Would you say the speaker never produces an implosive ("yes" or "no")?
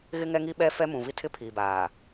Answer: no